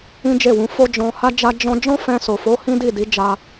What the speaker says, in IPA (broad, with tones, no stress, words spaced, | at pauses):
ĩ˦d͡ʒe˦˨wũ˨˦ fo˦ d͡ʒɔ̃˧ha˦d͡ʒa˦ d͡ʒɔ̃˦ d͡ʒɔ̃˦fɛ̃˧so˨fo˨˦ hĩ˦di˦˨di˨˦ d͡ʒa˧